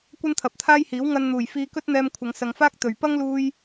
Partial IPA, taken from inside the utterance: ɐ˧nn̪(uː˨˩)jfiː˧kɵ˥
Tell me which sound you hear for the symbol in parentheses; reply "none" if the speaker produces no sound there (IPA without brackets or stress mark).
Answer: uː˨˩